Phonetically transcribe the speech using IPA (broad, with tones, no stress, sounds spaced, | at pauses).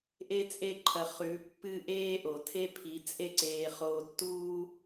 ʔ e˦ t͡sʼ e˦ ǃʰ ɐ˧ χ ʉ˨˦ pː ɨ˦ ʔ eː˦ ʔ o˨ tʰ e˦ pʰ i˨˦ t͡sʼ e˦ ǀ eː˧ χ oː˧ tː uː˦